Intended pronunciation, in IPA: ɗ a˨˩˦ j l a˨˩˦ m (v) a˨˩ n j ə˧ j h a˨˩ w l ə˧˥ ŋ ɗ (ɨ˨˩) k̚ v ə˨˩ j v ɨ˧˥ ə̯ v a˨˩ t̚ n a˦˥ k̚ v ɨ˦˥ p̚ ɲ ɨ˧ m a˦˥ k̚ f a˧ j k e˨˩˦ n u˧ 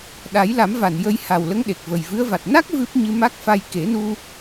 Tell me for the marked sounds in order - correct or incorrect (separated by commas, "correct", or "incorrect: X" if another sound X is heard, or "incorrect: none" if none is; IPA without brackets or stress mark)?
correct, incorrect: e˨˩